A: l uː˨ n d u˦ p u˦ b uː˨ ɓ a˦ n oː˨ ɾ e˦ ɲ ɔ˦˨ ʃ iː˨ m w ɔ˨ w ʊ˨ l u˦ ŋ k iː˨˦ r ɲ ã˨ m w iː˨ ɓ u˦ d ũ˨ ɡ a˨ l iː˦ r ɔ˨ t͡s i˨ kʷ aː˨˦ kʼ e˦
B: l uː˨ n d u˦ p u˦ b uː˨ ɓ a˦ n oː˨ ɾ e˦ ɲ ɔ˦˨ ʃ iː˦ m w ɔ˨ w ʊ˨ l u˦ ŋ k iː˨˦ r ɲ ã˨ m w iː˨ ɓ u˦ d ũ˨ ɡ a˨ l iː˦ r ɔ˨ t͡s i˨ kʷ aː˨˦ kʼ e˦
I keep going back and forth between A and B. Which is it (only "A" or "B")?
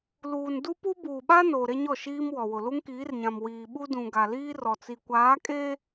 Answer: B